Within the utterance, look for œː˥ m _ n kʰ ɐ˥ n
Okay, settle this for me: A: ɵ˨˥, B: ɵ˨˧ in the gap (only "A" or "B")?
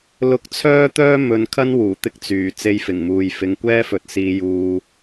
B